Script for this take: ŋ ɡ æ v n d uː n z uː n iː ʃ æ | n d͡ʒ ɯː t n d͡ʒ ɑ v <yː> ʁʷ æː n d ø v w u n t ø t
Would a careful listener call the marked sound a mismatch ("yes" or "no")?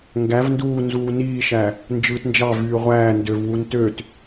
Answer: no